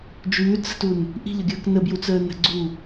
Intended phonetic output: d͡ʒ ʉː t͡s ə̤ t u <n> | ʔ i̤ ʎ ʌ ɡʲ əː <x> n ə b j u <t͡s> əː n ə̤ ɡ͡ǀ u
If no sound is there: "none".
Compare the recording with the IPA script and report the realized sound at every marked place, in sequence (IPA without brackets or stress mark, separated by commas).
n, k, t͡s